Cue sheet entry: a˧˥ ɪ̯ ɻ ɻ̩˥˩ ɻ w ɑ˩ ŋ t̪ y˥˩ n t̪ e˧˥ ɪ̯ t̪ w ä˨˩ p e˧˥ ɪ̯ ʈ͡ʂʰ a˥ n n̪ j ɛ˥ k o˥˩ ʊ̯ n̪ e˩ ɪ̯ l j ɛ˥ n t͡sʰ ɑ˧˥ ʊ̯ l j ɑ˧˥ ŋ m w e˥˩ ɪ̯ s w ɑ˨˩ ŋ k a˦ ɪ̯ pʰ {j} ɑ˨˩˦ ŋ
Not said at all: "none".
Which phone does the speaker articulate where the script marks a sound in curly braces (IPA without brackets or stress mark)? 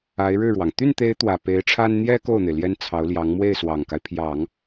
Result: j